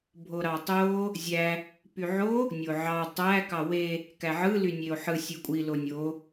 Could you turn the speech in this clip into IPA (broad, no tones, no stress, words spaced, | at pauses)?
bʱoɾɑtˤo | zʲæ | pyʕo | nʲoʕɑ tˤæ kɑwe | kæʕɯ lynʲeo̯ħɯ sʲɯkʷʼi lonʲo